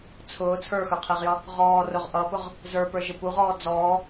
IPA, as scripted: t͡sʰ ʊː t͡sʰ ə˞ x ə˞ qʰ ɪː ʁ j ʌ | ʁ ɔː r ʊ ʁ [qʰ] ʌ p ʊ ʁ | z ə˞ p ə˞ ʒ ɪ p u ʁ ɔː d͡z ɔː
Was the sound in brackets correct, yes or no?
no